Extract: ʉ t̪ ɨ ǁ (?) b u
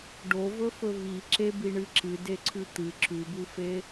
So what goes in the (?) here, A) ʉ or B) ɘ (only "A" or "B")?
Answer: A